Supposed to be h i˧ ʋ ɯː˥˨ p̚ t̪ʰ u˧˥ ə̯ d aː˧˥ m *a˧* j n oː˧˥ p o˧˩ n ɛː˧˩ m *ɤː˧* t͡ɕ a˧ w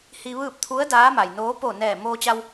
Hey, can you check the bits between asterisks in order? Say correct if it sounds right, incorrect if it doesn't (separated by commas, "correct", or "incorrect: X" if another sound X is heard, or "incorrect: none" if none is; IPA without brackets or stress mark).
incorrect: a˩, incorrect: oː˧